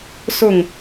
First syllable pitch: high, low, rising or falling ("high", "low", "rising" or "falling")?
falling